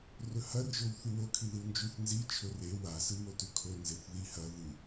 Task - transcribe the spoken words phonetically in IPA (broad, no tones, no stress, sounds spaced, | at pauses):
r ɵ h ɐ r ʒ o w θ ʉ w o kʰ i ð ɨ w n d͡ʒ ʉ θ n z i t͡ʃʰ ɵ r e w a s ɨ w o t ʉ kʰ o n z e θ ð i h ɐ ð ɨ